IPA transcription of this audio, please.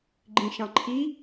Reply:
ɡ͡ǃ ĩ ʃ ɑ̃ ǃʰ i

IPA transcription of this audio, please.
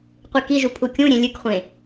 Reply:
qʷ i k i ʒ u pʰ u kʲ ũ ɾʲ ẽ lʲ ɨ k χʷ ẽ

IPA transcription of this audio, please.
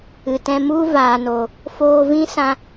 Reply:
ɨ˨ t ɛ̃˧ m u˦ v aː˨ n o˨ | f oː˧ v ĩ˦ s ã˦

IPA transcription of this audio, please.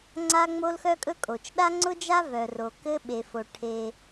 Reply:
ŋ͡ǀ a˥ ŋ͡m o˥ l x œ˥ kʼ ɵ˥ kʼ o˩ t͡ʃ ɗ a˥ ŋ͡ǀ ʊ˥ d͡ʒ a˥ v œ˩ r o˩ k ɘ˥ ɓ e˩ f o˩ ʈʰ e˩

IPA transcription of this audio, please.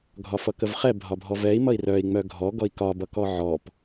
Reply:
ɡʱ ɒ f ʌ k ə v χ ɛ bʱ ɒ bʱ ɔ v ɛ i̯ m ʌ i̯ r œ i̯ ŋ͡m œ ɡʱ ɔ ɡ ɔ i̯ k ɒ b ʌ k ɔ ʕ ɔ p

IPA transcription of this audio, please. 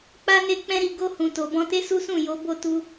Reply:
k͡p a˦ n e˦˨ k͡p ɛ̃˧ ɾ i˨ ɡ o˧ h ũ˨ t o˨ b ɔ̃˧ t e˦ s u˦ s ũ˦˨ j o˨˦ b o˦˨ t u˧

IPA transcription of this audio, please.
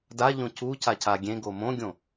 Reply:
d a ʎ õ c u c a c a ɡʲ ẽ ɡ o m õ ɡʲ õ

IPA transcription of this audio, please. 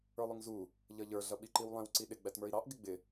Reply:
ə˞ lˠ ʊ ŋ z u | ʎ ʌ ʎ ə˞ ɮ ʌ ɓ i ǃ i w lˠ ɛ̃ w ǀ i ɗ ɪ ɡ͡b æ t m ə˞ i̯ ɾ ɑ ʔ ɡ ɪ ɡ͡b ɪ

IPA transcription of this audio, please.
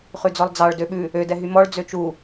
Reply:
χ ʉ d͡z ɔ lˠ d͡z ɑ ɭ d ø ɓ ʉ | ø d ɛ ɦ y m ɔ ɭ d͡z ø t͡ʃ u

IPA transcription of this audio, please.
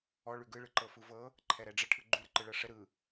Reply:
ɔ ɭ ʉ ɡ ɯ ɭ ɯ ǃ ɤ f ɯ v ɤ | ǃʰ ɛ ɾ ɛ ɖ͡ʐ ə ʈʰ ɯ ɡ͡ǃ ʉ ɾ ə ǃ ɯ ɭ ɤ ʂ ə ɾ ɯ

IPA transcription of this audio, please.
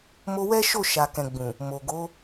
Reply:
m o˧ w ɛ˦ ʃ o˦˨ ʃ a˨ k ɛ̃˨ ɡ͡b ũ˨ | m o˨ ɡ o˨˦

